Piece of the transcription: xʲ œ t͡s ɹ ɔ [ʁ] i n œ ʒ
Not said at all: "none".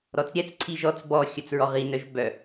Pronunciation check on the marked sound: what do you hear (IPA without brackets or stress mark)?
ʁ